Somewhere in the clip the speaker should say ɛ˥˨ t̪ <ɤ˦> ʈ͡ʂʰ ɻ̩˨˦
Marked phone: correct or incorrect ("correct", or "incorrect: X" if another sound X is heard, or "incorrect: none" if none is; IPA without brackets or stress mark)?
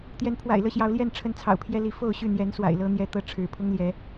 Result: incorrect: ɤ˥˨